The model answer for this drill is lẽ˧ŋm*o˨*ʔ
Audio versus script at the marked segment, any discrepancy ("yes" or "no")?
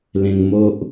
yes